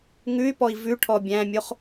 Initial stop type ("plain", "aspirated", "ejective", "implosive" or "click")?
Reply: plain